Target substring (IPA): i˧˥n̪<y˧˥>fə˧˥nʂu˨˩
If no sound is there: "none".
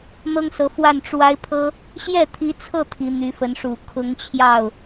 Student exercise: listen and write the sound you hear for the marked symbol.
y˧˥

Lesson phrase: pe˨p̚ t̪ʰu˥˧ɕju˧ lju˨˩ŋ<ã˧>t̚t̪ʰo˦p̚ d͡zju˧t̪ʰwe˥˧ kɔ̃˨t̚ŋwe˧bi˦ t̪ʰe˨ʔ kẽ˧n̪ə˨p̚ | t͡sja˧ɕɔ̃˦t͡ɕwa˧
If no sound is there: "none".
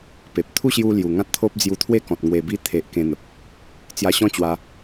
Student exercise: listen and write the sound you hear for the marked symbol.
ã˦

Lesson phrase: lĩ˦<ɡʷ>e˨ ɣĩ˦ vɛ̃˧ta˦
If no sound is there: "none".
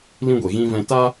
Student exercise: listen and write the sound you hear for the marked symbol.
ɡʷ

